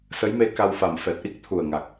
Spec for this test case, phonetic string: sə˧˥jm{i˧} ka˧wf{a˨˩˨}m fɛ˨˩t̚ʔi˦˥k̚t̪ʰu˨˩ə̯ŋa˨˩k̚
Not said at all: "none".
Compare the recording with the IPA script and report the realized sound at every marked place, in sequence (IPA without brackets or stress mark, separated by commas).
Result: e˧, a˨˩